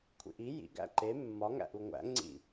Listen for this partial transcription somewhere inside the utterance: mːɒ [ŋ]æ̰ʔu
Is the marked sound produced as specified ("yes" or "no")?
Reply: yes